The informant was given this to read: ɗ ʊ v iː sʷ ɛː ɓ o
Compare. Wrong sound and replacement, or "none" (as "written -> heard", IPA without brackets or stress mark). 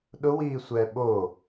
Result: v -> w